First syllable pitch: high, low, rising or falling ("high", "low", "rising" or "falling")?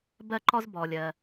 high